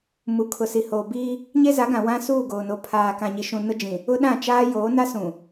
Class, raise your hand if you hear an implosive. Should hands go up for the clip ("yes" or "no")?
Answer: yes